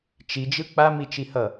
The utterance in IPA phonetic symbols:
t͡ʃ i d͡ʒ ɯ k͡p a m i t͡ʃ i h ʌ

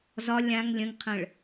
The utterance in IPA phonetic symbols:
z ɒ lʲ ã ŋ lʲ ə̃ ŋ qʰ ə̃ ɭ

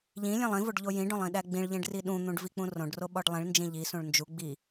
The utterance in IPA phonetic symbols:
ʎ ĩ lʲ ẽ lˠ ĩ v o ɖ ʎ o j ĩ ɖ õ lˠ ĩ ɗ æ ɡ͡b ĩ ɭ ʎ ẽ ɖ r i ɗ ũ n̪ ũ ɖ v i k͡p ũ r õ ɖ r o ɓ ɒ ɖ lˠ ĩ ɭ n d͡ʒ ĩ ʎ i s ũ ɭ n d͡ʒ u ɡ͡b i

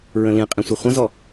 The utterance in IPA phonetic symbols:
ɹ ə̃ l ĩ qʼ ĩ sʷ e χʷ ə̃ z ɔ

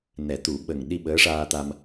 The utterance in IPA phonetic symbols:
n ɛ˨˩˦ t̪ u˨˩˦ ɓ ə˨˩ ŋ ɗ i˧ ɓ əː˧˥ ʂ aː˧ t̪ a˧ m

